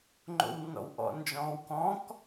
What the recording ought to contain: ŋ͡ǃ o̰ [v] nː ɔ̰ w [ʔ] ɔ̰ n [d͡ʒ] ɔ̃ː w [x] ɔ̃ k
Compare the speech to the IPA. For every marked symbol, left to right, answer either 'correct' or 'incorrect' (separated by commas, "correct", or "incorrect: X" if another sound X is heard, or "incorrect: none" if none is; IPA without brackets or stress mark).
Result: incorrect: w, correct, correct, incorrect: k